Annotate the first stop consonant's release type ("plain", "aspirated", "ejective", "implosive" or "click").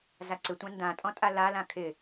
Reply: click